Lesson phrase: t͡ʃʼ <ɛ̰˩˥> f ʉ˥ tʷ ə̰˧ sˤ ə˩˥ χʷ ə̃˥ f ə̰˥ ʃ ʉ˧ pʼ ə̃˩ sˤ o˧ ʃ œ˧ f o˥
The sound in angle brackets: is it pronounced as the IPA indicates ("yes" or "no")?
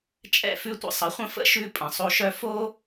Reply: no